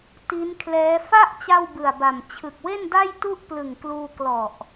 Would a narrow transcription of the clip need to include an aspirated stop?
yes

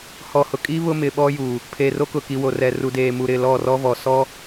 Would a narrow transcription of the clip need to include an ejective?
yes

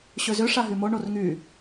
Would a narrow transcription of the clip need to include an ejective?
no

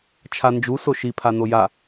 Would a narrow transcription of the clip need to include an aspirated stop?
yes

